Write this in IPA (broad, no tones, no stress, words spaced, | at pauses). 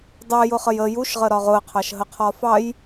dˤɛjʊχəj ə juʃʁə ɾɒʁʊə̯qʰɑʃ ɦəqʰɒfɑj